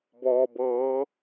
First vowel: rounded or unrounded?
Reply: rounded